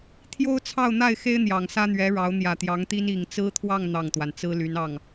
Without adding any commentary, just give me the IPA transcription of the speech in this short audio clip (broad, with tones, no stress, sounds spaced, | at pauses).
t̪ʰ j o˥ ʊ̯ t͡sʰ ɑ˥˧ ʊ̯ n̪ a˥˩ ɪ̯ x e˥ ɪ̯ n̪ j ɑ˨˩ ŋ s ä˥ n̪ ɥ ɛ˧˥ ɻ ɑ˧˥ ʊ̯ n̪ j ä˨˩ t̪ j ɑ˧˥ ŋ t̪ i˥ n i˨˩ ŋ t͡s ɹ̩˥ t̪ʰ w ɑ˥˧ ŋ n̪ ɑ˥˩ ŋ t̪ w a˩ n t͡s ɹ̩˥ l y˧˥ n ɑ˥˩ ŋ